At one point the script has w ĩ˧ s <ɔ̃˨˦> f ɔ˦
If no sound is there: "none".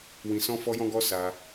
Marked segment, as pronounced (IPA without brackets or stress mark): ɔ̃˦